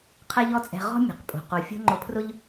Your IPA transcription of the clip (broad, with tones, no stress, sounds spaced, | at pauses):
qʰ ɛ˥ ʎ ɔ˥ t͡sʼ ɛ̤˧ ʁ ɔ̤˥ mʲ ɛ̤˩ q pʼ o̤˩ q o˩ fʲ o̤˥ ŋ͡ǃ ʊ˧ pʰ r ʊ˥ ʎ